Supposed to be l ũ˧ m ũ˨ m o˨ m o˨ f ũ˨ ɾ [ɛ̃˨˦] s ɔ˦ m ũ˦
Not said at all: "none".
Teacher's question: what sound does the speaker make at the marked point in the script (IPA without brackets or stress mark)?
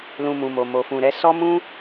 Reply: ɛ˨˦